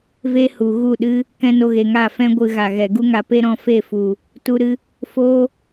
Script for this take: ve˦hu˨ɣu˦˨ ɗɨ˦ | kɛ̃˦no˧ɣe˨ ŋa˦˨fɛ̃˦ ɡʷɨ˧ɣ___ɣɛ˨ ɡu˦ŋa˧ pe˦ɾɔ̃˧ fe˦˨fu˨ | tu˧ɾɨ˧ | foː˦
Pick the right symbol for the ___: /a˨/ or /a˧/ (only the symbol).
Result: a˨